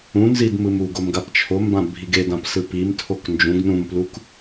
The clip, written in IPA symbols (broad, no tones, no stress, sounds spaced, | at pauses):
ũ n z i d m ɯ m u ɡ o m ɡ a p t͡ʃʰ o m b ã bʱ i ɡ e d ã p s ɯ p i m tʰ o k n d͡ʒ ũ ɡ n ũ m p l u k